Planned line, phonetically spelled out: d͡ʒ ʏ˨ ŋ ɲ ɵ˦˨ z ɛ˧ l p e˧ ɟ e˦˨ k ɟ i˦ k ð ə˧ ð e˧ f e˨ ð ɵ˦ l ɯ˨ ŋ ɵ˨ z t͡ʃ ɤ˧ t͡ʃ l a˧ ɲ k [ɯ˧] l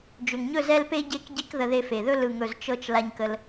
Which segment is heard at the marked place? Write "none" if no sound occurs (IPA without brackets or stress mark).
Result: ə˧